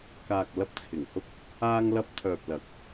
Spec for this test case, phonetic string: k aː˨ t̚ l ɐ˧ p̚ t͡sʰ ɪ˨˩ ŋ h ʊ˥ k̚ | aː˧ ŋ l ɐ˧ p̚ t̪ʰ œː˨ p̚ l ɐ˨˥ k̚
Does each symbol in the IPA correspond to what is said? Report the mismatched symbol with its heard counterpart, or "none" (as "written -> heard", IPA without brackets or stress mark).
t̚ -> k̚